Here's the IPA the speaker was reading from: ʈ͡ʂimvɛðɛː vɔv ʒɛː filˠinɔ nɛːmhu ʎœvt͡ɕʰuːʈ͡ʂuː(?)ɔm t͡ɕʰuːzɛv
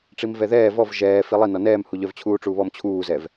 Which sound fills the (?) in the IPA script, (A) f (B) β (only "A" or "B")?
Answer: B